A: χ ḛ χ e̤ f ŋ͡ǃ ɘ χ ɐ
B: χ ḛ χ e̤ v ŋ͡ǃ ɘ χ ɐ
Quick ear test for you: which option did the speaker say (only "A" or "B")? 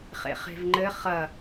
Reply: B